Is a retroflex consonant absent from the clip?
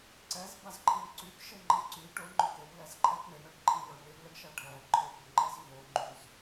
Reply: no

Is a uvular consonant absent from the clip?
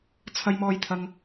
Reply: yes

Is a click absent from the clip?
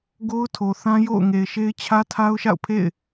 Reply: yes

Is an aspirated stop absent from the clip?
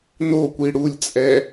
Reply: yes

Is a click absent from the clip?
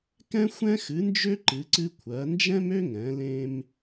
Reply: no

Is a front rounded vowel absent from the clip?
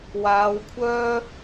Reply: no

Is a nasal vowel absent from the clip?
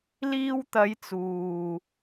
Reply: yes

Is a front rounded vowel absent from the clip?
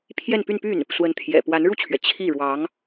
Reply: no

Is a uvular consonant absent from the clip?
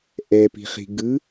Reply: no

